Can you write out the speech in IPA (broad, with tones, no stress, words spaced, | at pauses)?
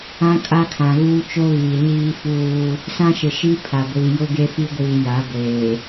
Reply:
ã˦kʼa˦kʰã˨ ɣuː˦t͡ʃo˦ɣiː˨ ɲiː˦fuː˦ | sã˦ʃɪ˨ʃi˦ pʰa˨ɡʷiː˨ jʊ˦ɡe˦fi˦ɡʷiː˨ ja˨˦ɡʷeː˨